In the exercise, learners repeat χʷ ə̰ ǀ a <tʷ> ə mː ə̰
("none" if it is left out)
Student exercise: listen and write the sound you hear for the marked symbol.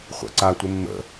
tʷ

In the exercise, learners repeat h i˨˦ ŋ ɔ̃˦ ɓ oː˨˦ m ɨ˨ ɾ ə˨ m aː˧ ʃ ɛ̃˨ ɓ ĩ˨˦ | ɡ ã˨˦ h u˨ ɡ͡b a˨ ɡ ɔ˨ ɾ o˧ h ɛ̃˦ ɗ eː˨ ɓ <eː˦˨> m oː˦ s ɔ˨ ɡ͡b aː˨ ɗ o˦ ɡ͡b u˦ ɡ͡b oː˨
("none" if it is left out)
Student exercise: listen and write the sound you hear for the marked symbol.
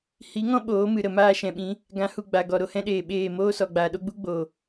eː˦˨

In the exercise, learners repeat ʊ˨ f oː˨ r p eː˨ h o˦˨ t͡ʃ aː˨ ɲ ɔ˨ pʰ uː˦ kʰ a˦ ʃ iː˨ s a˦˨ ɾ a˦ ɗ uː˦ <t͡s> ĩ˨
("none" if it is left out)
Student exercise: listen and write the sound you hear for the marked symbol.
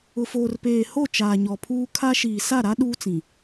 t͡s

